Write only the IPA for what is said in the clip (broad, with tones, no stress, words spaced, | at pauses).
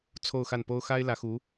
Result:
t͡sʰo˥˧ʊ̯xa˥˩npo˥ʊ̯ xa˥ɪ̯lä˧˥ xu˧˥